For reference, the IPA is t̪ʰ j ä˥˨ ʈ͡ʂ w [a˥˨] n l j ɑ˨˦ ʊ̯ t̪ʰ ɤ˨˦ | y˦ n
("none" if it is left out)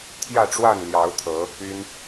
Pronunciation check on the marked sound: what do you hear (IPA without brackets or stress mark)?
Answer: a˥˨